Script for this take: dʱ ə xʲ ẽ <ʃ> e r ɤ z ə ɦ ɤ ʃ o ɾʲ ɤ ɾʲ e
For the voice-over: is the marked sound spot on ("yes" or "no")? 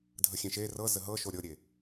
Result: yes